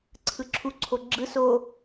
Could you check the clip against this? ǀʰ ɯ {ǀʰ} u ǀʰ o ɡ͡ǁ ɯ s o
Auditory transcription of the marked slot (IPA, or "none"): ǁʰ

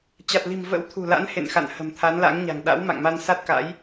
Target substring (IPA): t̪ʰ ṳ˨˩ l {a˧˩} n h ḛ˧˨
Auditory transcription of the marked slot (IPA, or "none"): a̰˧˥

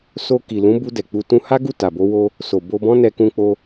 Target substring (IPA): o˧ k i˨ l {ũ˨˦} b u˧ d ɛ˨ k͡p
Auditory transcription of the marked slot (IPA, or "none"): ũ˨˦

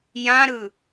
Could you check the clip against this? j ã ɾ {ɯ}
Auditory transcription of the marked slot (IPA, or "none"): ɯ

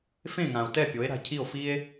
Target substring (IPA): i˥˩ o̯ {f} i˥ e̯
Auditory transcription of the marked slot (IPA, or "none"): f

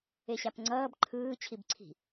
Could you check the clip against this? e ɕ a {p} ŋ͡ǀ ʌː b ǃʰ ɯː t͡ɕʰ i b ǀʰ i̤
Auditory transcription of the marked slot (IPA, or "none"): p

